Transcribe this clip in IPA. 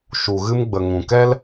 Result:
ʃu˨ɣɨ˧mɡ͡bə˨ ŋũ˨kɛ˦l

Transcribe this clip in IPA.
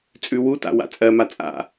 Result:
t͡sʼʉwuta̰ wa̰t͡sʼɜma t͡sʼa̰

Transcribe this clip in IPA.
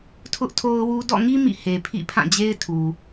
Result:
tʰʊ˦ʔtʰo˦ʊ̯wu˦ dɔ̰˦˨ŋi˦ mḭ˦˨he˨pʰḭ˦˨ pʰã˦˨d͡ʑe˦ɪ̯tʰu˨

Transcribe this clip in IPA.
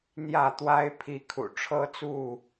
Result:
n̪jä˥˨t̪wa˦ɪ̯ pʰi˨˦kʰṵ˨˩ ʈ͡ʂʰɤ˦t͡su˥˨

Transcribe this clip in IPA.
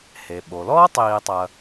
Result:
he˩ ɓo˩lɔː˥tˤiː˨tˤɐ˨

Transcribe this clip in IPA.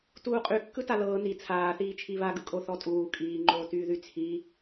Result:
tuːqʼykːɯ talɤː ni t͡sʰaːθiː t͡ʃʰiβaɡɯkʼo θɔtʼuː kʼiːŋ͡ǃoːtyːðy t͡sʰi

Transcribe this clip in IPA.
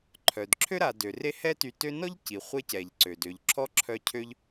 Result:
ǃʰœ˩dǁʰø˥ɾa˨ dø˩re˥ hɛ˦ty˨ tø˦nɔ˥ʎ ci˩ χʷe˦cɛ˩ʎ ǀø˩dø˩ʎǁʰɔ˥ ǁʰœ˦cʰø˥ʎ

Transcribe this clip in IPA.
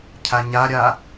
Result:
cʰaɲaɾʲa

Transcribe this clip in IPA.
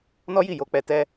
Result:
nɔ˦ji˦˨jo˧k͡pɛ˧ tɛ˦

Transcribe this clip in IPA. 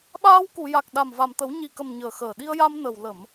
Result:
ɓaː˧w ku˨˩˨ja˨˩k̚ɗa˨˩m va˨˩mt̪ə˨˩˦w ɲi˨˩kə˨˩m ɲəː˨˩xəː˨˩ ɗi˧ə̯ja˧mnə˨˩w lə˨˩˨m

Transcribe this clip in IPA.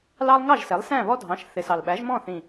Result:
lɑ˦lˠŋɑ˥˨ʒsɛ˩˥lˠ sæ̃˥˨βɔ˦dʱɑ̃˩˥ʃ θɪ˨˩sɑ˨˩l ɓæ˩˥ʒmɔ̃˥˨θĩ˨˩

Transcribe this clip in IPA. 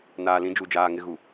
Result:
naː˨lĩ˨˦d͡ʒu˨d͡ʒaː˨ ŋɪ˨ɣu˨

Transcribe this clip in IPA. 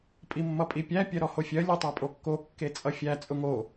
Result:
pʼimːʌpʼipʲæ pʲɜɾɔhofʲɜ lʲotˤɜpʼokːo kːet͡sʼʌfʲæ t͡sʼʊŋo

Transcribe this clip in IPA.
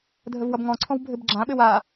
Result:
dʱəvwʌbŋɔ̃ǀʰɔ̃w bʱɘbɡ͡ǁãɓɘw a

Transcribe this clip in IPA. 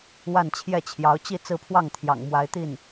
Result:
wa˥˧nt͡ɕʰjɛ˥˩t͡ɕʰjɑ˧˥ʊ̯ t͡ɕi˥˧ t͡sɹ̩˥˧pʰwɑ˥˩ŋ t̪ʰjɑ̰˨˩ŋ mwa˧˥ɪ̯t̪i˥˩n

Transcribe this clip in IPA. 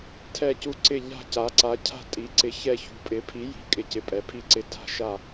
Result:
tʰɛ˨˩cu˨˩ ǀɪ˨˩ʎa̤˨˩ ca˩˧ǀa˩˧ cʰa̤˨˩tʼi˩˧ǀɪ˩˧ çɛ˨˩çṳ˩˧pʼɪ˩˧ pʰi˩˧ji̤˩˧kʼɪ˩˧ cɪ˩˧pʼɛ˩˧pʰi˨˩ǀɪ˨˩ tʰa̤˨˩ʃa˨˩

